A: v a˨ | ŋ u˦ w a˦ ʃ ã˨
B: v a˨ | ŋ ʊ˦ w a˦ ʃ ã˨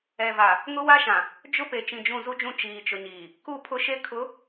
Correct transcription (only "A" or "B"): B